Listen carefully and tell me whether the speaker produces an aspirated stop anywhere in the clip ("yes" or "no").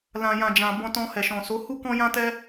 no